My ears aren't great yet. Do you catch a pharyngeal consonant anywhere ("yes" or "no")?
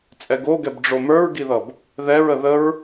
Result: no